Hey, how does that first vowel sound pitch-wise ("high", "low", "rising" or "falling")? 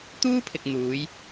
high